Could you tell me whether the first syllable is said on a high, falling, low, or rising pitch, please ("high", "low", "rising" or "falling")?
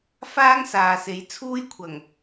high